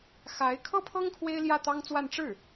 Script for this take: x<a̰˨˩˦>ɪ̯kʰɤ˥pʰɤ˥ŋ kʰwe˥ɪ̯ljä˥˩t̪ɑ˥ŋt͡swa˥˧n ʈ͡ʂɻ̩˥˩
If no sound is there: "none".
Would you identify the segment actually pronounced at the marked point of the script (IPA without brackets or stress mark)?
a˧˥